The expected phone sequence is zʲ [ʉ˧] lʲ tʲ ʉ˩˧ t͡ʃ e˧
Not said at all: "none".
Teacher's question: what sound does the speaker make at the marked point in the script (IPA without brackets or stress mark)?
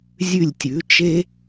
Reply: ʉ˧˩